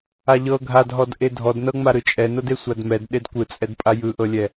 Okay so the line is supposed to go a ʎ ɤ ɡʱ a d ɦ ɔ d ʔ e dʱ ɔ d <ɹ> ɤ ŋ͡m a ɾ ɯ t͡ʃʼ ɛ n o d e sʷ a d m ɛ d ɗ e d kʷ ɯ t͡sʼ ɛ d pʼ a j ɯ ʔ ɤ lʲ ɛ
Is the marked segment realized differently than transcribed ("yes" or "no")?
yes